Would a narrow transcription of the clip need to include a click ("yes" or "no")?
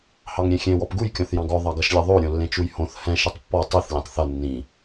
no